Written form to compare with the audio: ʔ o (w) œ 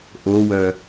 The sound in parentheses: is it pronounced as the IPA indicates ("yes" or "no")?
yes